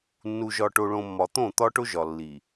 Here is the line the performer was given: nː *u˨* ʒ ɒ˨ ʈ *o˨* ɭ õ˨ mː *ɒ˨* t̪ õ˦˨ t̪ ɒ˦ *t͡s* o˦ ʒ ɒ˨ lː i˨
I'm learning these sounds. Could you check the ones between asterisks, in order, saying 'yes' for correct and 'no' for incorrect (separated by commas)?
yes, yes, yes, no